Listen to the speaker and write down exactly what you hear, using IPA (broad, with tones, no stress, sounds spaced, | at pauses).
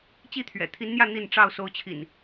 t͡ɕ i˥˨ t̪ʰ ɥ ɛ̰˨˩ t̪ʰ i˨˦ n n̪ j ä˥˨ n̪ i˥˨ n ʈ͡ʂ ɑ˥˨ ʊ̯ s o˨˦ ʊ̯ t͡ɕʰ ḭ˨˩ n